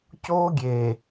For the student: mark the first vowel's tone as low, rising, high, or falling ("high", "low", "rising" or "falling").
high